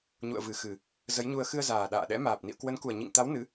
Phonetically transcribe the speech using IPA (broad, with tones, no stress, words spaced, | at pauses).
ɲṵ˧˨ə̯vɨ˨˩xɨ˨˩ | zə˨˦jɲu˧ə̯ xɨ˧ə̯zaː˨˩ɗa̰ː˧˨ɗɛ̰˧˥ maː˨˩p̚ nḭ˧˨ə̯kwə˨˦nku˨˩ə̯ ɲḭ˧˨ŋt̪a˨˦w nɨ˨˦